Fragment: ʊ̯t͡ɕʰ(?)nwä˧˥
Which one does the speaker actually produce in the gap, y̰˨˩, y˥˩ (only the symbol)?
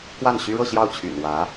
y̰˨˩